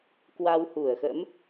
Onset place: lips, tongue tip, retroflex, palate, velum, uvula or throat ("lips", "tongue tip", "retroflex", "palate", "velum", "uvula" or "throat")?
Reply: velum